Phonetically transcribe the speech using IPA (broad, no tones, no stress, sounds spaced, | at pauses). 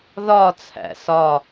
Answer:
ð ɒ t͡sʰ æ̰ s ɒ